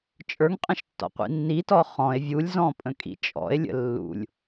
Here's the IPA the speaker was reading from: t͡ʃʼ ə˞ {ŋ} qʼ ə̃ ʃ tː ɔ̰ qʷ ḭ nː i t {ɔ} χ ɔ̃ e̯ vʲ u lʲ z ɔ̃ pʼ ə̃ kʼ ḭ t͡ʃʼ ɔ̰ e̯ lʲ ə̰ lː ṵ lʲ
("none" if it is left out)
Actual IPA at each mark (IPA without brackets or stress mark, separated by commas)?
ŋ, ɔ